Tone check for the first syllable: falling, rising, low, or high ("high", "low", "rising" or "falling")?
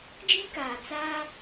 high